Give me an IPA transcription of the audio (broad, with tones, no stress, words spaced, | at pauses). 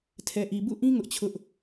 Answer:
tʰɛ˨ʔi˨ bṵ˦˨ʔĩ˦ ŋʊ˦ʔt͡ɕʰʊ˦ʔ